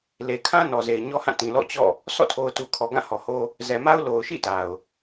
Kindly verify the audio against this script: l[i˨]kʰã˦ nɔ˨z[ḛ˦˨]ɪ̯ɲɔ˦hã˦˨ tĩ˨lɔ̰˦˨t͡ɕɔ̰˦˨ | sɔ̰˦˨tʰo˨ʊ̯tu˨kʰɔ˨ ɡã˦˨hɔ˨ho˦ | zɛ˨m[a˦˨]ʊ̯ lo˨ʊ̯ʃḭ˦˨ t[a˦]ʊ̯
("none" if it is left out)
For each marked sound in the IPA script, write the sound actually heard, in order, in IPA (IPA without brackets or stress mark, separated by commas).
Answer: e˨, e˨, a˦, a˨